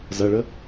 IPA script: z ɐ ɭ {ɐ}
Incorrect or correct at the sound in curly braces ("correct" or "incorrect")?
incorrect